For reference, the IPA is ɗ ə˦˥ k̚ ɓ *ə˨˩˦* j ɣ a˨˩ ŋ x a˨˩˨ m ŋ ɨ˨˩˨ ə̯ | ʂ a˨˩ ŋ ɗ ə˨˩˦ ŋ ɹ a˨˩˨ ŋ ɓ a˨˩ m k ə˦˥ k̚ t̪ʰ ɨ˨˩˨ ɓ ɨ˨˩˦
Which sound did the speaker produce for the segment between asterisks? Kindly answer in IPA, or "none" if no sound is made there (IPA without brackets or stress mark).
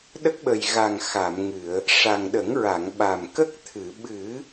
ə˨˩